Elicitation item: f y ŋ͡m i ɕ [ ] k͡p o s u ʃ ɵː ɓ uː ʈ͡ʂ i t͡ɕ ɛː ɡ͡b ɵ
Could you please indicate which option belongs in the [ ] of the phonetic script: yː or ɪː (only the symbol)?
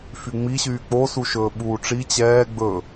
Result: yː